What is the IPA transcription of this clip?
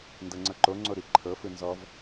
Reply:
n d ɤ ŋ͡ǀ ɤ ǃ o ŋ͡ǀ o ɾ i ǃʰ ɤ f ɯ n z ɔ v

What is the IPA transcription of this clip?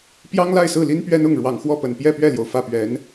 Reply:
p j ɑ˥ ŋ l a˥˧ ɪ̯ s ɹ̩˥˩ l i˥ n p ɥ ɛ˥ n ʊ˥˩ ŋ ɻ w ɑ˨˩ ŋ x w ɔ˥˩ p ə˨˩ n p j ɛ˥˧ p ɥ ɛ˥˩ l j o˩ ʊ̯ f ä˥˩ p ɥ ɛ˧˥ n

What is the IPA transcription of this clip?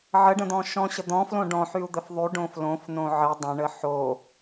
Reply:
ʕ ə ɖ ə̃ d̪ ɔ̃ ʃ ɔ̃ ɕ ə d̪ ɔ̃ f l õ ɖ ɔ̃ ħ y u̯ d̪ ə f ðˤ y ɖ õ f l õ f n õ ʕ ə dˤ ə̃ ɳ ə ħ o

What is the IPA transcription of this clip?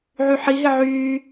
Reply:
ʕ y ħ i ɦ ɪ ʕ yː

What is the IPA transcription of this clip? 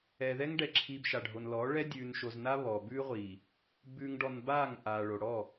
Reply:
ɛ˨ ð ɛ˦ ŋ ɖ ɛ˨ ǁʰ i˨ b ʃ a˨ ɖʱ o˨ n l ɔ˨˦ ɭ ɛ˦ dʲ ʉː˨ n ʃ o˨ z n a˦ β ɔ˨ b ʉ˦ ʁʷ i˨ | b ʉ˨ ŋ ɖ ɔ˨ n b aː˦˨ ŋ ʔ aː˨ ɭ o˨ ɽ ɔ˦˨

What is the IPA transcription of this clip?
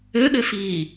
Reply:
ø ɠ ø f iː

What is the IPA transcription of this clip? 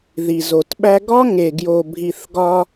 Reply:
ð i˨ z o˨ t ɓ æ˦ ɡ ɒ˦ ŋ e˨ ɡ j o˨ bʱ i˨ θ ɡ ɒ˦

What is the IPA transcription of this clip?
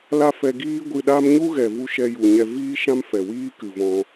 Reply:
l a˦ f ɛ˧ ɡ iː˦ ɡʷ ɨ˧ ɗ a˦ m ɲ u˦ ɣ ɛ˨ v u˧ ʃ ɛ˧ j u˨ ɲ ɛ˧ v iː˦ ʃ ã˦ m f ɛ˨ w iː˦ k ɨ˨ v ɔ̃˧

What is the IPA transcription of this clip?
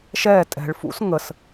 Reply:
ʃ ɛ tʼ ɛ̤ ɭ f ṵ s ŋ ə s

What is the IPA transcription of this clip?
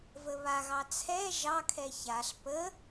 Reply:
v ə β a ɣ ɑ t͡sʰ ɛ ʒ ɑ kʰ ɛ ç a ɬ p ə

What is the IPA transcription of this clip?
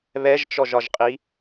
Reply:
β ɛ ʒ t͡ʃ ɔ ʒ ɒ ʒ qʼ i

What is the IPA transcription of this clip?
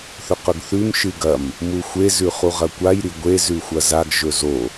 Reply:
θ ɵ q ɵ ɡ θ ʉ m ʃ ɨ ɡ ɐ m | m u xʷ e z ʉ χ u ʁ ɐ kʷ a j ɾ i ɡʷ e z ʉ xʷ ɐ z a ɡ ʒ ɵ z o

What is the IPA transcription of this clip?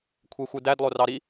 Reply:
kʷʰ e xʷ ɯ d æ d lˠ o r ɑ ɾ i

